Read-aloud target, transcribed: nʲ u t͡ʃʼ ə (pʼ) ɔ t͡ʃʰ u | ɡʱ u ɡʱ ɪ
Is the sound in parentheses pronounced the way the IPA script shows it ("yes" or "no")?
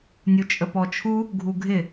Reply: no